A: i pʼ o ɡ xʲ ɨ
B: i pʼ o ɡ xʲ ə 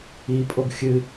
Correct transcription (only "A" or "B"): A